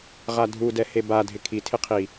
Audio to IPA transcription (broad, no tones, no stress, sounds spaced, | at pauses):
ʁ a dʱ u d ɛ h e b a dʱ ɪ kʰ i tʰ ɪ qʰ i